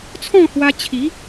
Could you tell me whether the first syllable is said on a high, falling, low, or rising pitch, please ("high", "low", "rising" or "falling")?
falling